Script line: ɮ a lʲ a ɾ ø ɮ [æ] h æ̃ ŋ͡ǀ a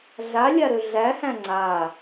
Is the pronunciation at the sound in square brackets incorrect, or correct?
correct